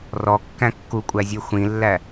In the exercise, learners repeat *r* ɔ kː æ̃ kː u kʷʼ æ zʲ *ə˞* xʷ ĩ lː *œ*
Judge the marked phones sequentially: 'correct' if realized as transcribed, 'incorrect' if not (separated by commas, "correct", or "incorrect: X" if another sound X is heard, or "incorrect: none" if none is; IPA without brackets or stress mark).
correct, correct, incorrect: æ